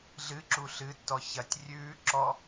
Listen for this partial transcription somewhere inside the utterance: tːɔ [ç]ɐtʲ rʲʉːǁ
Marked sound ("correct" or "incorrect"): correct